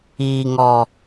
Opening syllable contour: low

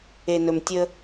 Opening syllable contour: low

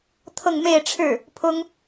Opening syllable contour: falling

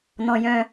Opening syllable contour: low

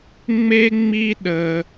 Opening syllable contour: high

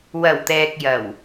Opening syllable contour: low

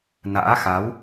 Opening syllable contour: rising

